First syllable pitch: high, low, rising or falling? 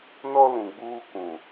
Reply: high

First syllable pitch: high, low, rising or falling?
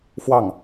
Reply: falling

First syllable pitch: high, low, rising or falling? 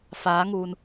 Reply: rising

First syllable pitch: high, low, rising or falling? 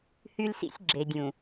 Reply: high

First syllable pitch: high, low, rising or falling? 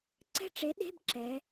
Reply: falling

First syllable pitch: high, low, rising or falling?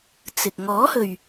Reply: low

